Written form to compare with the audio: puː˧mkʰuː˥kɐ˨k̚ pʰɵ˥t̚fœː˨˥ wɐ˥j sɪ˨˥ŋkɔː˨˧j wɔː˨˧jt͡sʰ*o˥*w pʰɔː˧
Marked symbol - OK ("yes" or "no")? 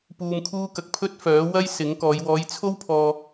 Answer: yes